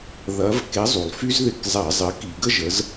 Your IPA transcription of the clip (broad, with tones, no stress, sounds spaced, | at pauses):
ð ɐ˨˥ v k e˨˥ zˤ u˩ lˠ f y˥ z ð ɪ˧˩˧ k zˤ ɛ˧˩˧ zˤ ɪ˨˥ k i˧˩˧ ɡ ə˥ ʒ ə˨˥ z